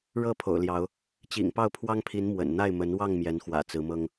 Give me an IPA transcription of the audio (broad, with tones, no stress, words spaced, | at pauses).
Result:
ɻɤ˥˨pʰo̰˨˩ʊ̯ljɑ˨˦ʊ̯ | t͡ɕḭ˨˩ŋpɑ˥˨ʊ̯pʰwɑ˦ŋpʰi˨˦n mwə̰˨˩n n̪a˥˨ɪ̯mə˨˦n wɑ˥˨ŋmjɛ˨˦n xwä̰˨˩t͡sɹ̩˨˦mɤ˦ŋ